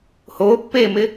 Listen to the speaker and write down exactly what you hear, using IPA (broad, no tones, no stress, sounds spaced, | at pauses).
h oː pː eː m ɪ